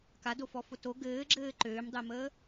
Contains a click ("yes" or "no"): yes